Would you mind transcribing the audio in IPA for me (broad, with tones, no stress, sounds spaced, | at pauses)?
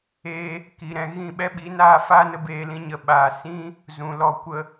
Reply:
eː˧ | k i˧ ɾ ɛ̃˧ ɣ ĩ˦˨ ɓ ɛ˦ ɓ i˨˦ n aː˦ f aː˦ n ə˧ b eː˧ l ĩ˧ ɲ ə˨ ɓ aː˨ s ĩ˦ | z ũ˨ l ɔ˧ kʷ ə˧